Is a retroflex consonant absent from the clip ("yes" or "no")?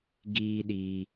yes